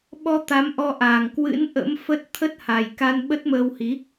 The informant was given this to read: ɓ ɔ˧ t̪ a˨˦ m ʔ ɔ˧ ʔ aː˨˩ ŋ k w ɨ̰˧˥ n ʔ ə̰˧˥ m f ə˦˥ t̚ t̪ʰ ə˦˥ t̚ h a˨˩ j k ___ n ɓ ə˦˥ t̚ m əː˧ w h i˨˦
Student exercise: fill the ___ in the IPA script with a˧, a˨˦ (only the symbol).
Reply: a˧